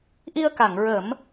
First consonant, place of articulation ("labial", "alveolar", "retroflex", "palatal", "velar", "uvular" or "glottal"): glottal